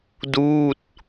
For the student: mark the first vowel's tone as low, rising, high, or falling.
falling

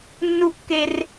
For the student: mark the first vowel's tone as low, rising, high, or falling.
high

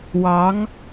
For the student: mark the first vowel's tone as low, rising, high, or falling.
rising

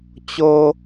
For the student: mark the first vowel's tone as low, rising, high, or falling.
high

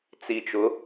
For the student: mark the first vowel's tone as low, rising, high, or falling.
low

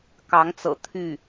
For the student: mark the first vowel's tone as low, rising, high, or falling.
rising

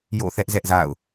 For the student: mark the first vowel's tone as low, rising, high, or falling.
falling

